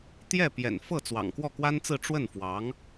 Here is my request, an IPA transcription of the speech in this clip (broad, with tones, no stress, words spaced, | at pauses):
t̪jɛ˥˩pjɛ̰˨˩n fɤ˥˩ t͡swɑ̰˨˩ŋkwɔ˥˩kwa˥nt͡sɹ̩˥˧ ʈ͡ʂwə˥˩nfwɑ˧˥ŋ